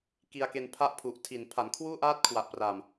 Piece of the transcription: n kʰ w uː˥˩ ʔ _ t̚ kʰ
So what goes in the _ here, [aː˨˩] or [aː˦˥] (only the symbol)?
aː˦˥